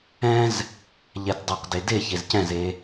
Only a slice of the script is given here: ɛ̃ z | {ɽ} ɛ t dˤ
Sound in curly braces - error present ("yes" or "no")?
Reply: yes